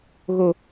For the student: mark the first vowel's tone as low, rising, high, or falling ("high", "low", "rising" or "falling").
high